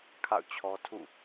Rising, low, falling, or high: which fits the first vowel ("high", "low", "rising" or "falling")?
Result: falling